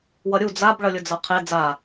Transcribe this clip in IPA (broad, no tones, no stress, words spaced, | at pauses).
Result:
wʌɾʲu d͡zab ɭʌlʲʊd͡zʌqʰe d͡za